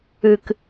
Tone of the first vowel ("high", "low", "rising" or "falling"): low